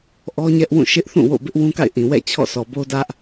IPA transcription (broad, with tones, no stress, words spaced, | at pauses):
ʔɔ˦ɲɛ˦ʔwũ˦˨ʃɪ˦ʔ θũ˦˨wo̰˦˨bɪ˦ʔ wũ˦ka̰˦˨ɪ̯ʔĩ˨wɛ̰˦˨ t͡ɕʰɔ̰˦˨sɔ˨bo˦ dä˦ʔ